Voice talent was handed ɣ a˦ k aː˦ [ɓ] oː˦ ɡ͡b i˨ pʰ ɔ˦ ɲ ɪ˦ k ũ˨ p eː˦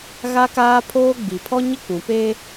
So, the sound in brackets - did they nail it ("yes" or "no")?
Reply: no